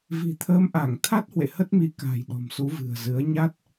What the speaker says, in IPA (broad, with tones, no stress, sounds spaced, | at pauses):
v i̤˨˩ t̪ʰ əː˨˦ m ʔ a˧˩ ŋ t̪ʰ a˦˥ t̚ h w ḛ˧˨ h ə˦˥ t̚ m i˨˦ k a̤˨˩ j ɗ ɔ̤˨˩ m s u˨˦ v ɨ̤˨˩ ə̯ z ɨ˨˦ ə̯ ɲ a˦˥ t̚